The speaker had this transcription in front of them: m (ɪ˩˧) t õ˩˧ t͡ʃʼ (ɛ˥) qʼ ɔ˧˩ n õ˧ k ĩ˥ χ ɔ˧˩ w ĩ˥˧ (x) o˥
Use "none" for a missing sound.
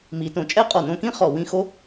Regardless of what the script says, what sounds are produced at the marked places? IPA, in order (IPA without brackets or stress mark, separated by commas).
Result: i˩˧, ɛ˥, x